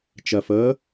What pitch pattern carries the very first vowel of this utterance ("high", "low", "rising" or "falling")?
low